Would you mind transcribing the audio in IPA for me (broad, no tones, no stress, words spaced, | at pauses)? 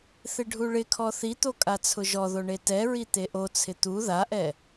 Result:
θɪɖʱuɭɪkʰɔ θit̪o kʼat͡sʰʊʒɔðo ɳetɛɹi t̪eʔot͡sʰɪ t̪u ðaʔɛ